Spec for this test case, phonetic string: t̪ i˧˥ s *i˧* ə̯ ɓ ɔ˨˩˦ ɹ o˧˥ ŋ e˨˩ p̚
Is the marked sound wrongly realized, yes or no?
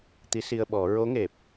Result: no